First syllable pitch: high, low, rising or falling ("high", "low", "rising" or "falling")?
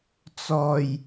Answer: low